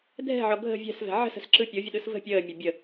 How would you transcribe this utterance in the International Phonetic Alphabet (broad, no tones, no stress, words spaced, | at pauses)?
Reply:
dʱɛ̤ʕɔ ɡʱə̤ vʲɛ̤svɛ̤ ʕə̤sə̤sǁɯ pʲovʲəɗɯs və̤ pʲəːmʲɛ bʲə